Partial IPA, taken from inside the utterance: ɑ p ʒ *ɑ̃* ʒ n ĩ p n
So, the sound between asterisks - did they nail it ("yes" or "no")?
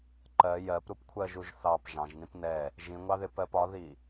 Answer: yes